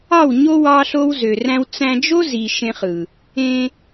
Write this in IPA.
ɑ˦˨ w ɲ o˦ w ɑ˦ ɬ o˦ w z ø˨ r æ̃˦ w t͡s æ̃˧ d͡ʒ o˦ z i˨ ʃ ẽ˧ χ ɯ˨ | ẽ˧

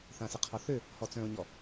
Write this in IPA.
θ ã s ɪ qʰ ɔ θ ø | h ɔ t͡s œ̃ ʊ̯ ɲ ɔ

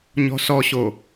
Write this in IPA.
ɲ ɔ̤ s ɔ ɕ o

